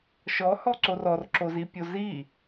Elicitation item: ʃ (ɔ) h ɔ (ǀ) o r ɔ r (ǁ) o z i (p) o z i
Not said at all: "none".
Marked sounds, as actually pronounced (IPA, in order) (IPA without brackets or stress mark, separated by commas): ɔ, ǀ, ǁ, pʲ